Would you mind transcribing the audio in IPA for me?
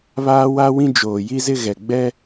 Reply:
β aː˦ w a˦ w ĩ˦ d͡ʒ oː˨ j i˦ z ɪ˦ ɣ ɛ˨ ɡ͡b ɛ˦

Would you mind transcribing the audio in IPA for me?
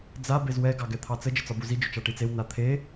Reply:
d͡z a b e z w ɛ ɡ ɑ ɡ ɛ t̪ʰ ɑ t͡s ə d͡ʒ ə t͡s ɒ b u z i d͡ʒ ʊ t͡ʃ ɑ ʈ i t͡s e w n a t̪ʰ e

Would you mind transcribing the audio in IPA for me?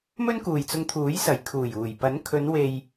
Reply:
m ɵ˥ n k uː˨ j t͡s ʊ˧ ŋ t̪ʰ uː˨˥ j s ɐ˨˩ j kʰ uː˨˩ j uː˨˩ j p ɐ˨˥ n kʰ ɵ˨˧ n w e˨ j

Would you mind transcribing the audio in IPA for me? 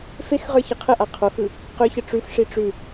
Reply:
f e x ʁ ə˞ ç ə qʰ ə ʔ a qʰ o x ɯ | q ʏ ç ə ʈ͡ʂ ʉ x ʂ i ʈ͡ʂ ʉ

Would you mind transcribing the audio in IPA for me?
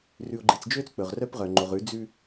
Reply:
r ʉ˨ o̯ ɡ͡ǃ i˨ t͡s d͡ʒ ø˦ t͡s k͡p ɵ˨ ʁ r œ˦ p ʁ œ˨ ŋ͡ǃ o˨ ʁ ʉ˨˦ d͡z ʉ˦

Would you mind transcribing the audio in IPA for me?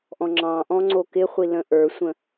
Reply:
ʔ ɔ̃ ŋ͡ǁ ɑ̃ ʔ ɔ̃ ŋ͡ǀ o k ɪ χʷ i l ə̃ ʔ ə˞ sʷ ə̃

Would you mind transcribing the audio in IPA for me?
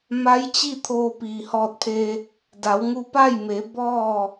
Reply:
m a˧˥ j t͡ɕ i˥˨ t̪ʰ oː˧ p iː˩ h ɔː˧ t̚ pʰ e˧ | d a˩˧ w ŋ u˧ p a˥˨ j m e˩˧ b ɔː˥˨

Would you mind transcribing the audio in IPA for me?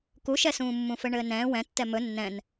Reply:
k u ʃ ɛ s ũː mː ũ f ɘ ɳ ɘː n ɛ̃ː w ɛ̃ tː ɛ m ɵ nː ɛ̃ n

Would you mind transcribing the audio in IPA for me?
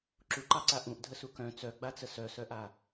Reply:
ǁ u ǃ ɑ ǀ a ʔ ũ ʔ dʱ ə s u k œ̃ t͡s œ ɡ͡b a t͡s ə s œ s œ ʔ a

